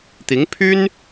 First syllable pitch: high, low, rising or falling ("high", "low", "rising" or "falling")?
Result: rising